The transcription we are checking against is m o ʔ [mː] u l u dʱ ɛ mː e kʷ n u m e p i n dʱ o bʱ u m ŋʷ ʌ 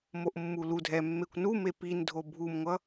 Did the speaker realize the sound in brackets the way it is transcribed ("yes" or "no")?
yes